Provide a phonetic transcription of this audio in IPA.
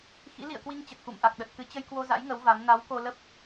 x ḭ˧˥ l ḭ˧˨ ə̯ k w i˧ ŋ t͡ɕ ə˨˩ t̚ x ṵ˧˨ m ʔ a˨˩ k̚ ɗ ə˨˩ t̚ k ɨ˨˦ t͡ɕ ə˧ j k w o˧ z a̰˧˥ j ŋ ə˨˦ w v a˨˦ m n a˨˦ w k o˧ l ə˦˥ p̚

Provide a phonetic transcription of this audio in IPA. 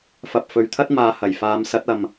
f ɐ˨ p̚ f ɵ˨ ɥ t̪ʰ ɐ˥ t̚ m aː˨ h ɐ˨˩ j f aː˨˧ m s ɐ˨˥ t̚ ɐ˨ m

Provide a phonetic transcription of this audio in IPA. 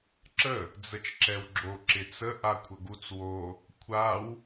ǁ ə | d͡z ə t͡ʃ ǁ ɛ w ɡ͡ǁ o ǁ ɪ t͡s ə ʔ a kʷʰ ə ɡ u t͡s w o | kʷʰ a w

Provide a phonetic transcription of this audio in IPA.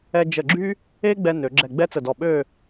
ɛ˧ d͡ʒ ə˧˩ ɡ͡ǁ y˥ | e˥ ɡ͡b ɛ˧ n ø˩˧ ɡ͡ǁ ɛ˧˩ ɡ͡b ɛ˥ t͡s ə˧˩ d ɔ˧˩ ɓ ø˥˧

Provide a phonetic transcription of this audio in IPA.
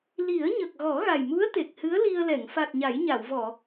l i˨˩˦ ə̯ ɲ ə˨˩ k̚ ɣ ɔ˨˩˦ ɣ a˨˩ j m u˧˥ ə̯ t̪ e˨˩ k̚ h ɨ˧˥ ə̯ l i˧ ə̯ l ɛ˨˩˨ ŋ f a˨˩ t̚ ɲ a˨˩˦ j ɲ a˨˩˨ w v ɔ˨˩˨

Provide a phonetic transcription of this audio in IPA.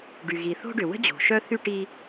ɖ y˩ ɣ i˩ θ o̤˥ ɖ ʏ˩ w ə̤˥ d͡ʑ o̤˩ ʃ œ˥ θ y˥ ʈ i˥

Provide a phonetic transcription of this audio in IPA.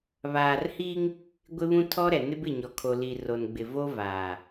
β aː˨ r h iː˦ ŋ | ɡʷ ɪ˦ β ũ˦ tʰ ɔ˦ ɾ ɛ˨ n ɪ˦ b ɪ˦˨ ɲ ɔ˨ kʰ o˨ l i˨ r o˨ n ɡ͡b ɪ˨ v o˦ v aː˨

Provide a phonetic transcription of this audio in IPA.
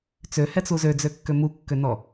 t͡s ø h ɛ t͡s u z ø d͡z ø kː ø m u kː ø n ɔ

